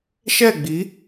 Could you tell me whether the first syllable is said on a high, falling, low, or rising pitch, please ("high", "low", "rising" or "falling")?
falling